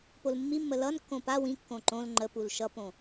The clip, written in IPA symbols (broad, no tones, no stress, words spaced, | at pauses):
polmːimːə lʌnkːõ pa wĩkːõ ǃõl ŋ͡ǃəpul ʃʌpõ